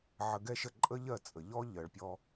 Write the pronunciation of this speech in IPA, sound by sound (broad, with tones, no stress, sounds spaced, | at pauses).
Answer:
ʕ ə˧ ɡ ɛ˥ ʃ ə˥˩ ǃʼ ə˥ ʎ ɜ˥˩ t͡sʼ ə˩ ʎ ɔ˥ ʎ ɜ˩ ɭ pʲ ɔ˧